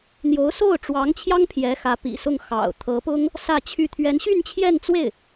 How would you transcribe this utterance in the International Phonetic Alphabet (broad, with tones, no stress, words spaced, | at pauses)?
n̪jo˧˥ʊ̯so˥˩ʊ̯ʈ͡ʂwɑ˧˥ŋt͡ɕʰjɑ˥ŋ pʰjɛ˧˥xä˧˥pḭ˨˩sʊ˥˩ŋ xɑ̰˨˩ʊ̯ t̪ʰɤ˧˥pʊ˥ŋ | sä˥˧t͡ɕʰy˥˩ t̪ʰɥɛ˧˥n ɕy˥˧nt͡ɕʰjɛ˥˧nt͡swe˥˩ɪ̯